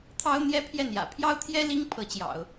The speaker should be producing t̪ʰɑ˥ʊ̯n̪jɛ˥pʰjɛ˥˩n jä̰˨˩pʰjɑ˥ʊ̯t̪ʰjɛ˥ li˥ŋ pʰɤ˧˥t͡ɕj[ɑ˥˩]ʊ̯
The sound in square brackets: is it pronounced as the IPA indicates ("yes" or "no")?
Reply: no